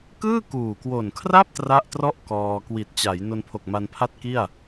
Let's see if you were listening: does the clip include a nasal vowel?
no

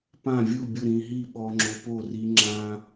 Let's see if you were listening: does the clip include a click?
yes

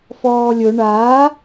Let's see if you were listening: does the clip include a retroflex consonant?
yes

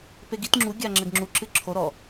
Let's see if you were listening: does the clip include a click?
yes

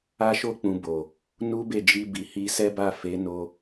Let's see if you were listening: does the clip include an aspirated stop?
no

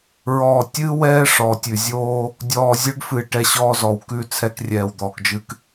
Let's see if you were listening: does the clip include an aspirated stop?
yes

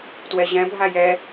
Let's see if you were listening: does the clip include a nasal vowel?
yes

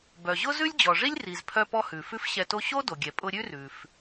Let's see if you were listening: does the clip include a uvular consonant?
no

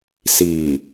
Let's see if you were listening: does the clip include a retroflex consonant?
no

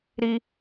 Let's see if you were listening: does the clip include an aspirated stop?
no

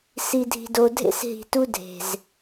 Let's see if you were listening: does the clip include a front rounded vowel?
no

